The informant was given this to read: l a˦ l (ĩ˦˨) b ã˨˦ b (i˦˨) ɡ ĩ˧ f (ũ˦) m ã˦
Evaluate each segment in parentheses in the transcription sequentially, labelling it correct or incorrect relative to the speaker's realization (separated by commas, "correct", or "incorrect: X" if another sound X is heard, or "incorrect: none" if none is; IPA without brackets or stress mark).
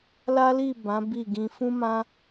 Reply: incorrect: i˦˨, correct, correct